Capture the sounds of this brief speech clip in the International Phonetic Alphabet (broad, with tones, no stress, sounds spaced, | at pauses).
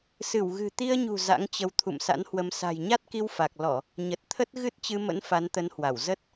s ɨ˧˩ w ɣ ɨ̤˨˩ t̪ i˧ ə̯ ɲ ṳ˨˩ z a̰˧˥ ŋ t͡ɕ ə˧ w t̪ʰ ṵ˧˨ m s a̰˧˥ n h w ə˨˦ m s a̤˨˩ j ɲ a˦˥ t̚ k i˧ w f a˨˩ k̚ l ɔ˧˩˨ | ɲ ə˨˩ t̚ t̪ʰ ə˦˥ t̚ ɣ ɨ˦˥ t̚ t͡ɕ ɨ˧ m ə̰˧˥ n f a˨˦ n t̪ ə˨˦ n h w a˧˩ w z ə˦˥ t̚